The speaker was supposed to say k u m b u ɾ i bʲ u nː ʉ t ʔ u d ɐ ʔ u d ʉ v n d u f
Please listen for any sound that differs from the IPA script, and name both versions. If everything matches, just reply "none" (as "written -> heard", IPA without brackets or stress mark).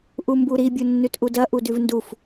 k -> ʔ